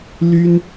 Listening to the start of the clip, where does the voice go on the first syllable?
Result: high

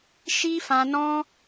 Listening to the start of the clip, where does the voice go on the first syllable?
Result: high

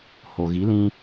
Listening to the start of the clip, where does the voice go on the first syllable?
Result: low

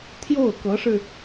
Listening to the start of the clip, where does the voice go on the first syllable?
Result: falling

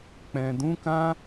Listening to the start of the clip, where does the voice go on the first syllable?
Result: low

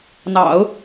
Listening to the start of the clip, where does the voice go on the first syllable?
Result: low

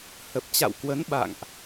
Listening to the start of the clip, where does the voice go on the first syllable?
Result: low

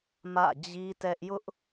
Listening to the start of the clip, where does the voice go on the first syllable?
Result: falling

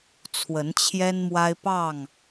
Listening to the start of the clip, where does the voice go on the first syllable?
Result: rising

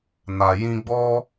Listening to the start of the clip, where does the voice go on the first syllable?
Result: low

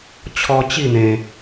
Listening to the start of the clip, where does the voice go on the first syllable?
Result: high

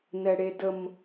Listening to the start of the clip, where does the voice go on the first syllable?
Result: low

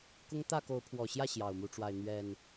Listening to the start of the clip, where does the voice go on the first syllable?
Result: high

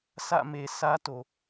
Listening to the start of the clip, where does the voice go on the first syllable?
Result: falling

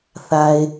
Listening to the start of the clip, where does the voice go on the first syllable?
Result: low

